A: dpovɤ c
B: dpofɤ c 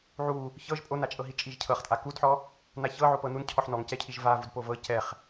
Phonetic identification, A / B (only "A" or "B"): A